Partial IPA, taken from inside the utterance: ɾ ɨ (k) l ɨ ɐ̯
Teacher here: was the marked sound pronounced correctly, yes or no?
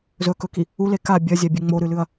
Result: no